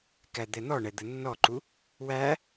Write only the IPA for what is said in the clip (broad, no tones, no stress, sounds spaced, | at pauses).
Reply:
k æ d̪ ɛ n̪ ɔ ɳ ɛ d̪ ə nː ɔ ǃ u | w æ